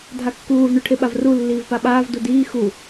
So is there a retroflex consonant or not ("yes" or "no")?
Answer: yes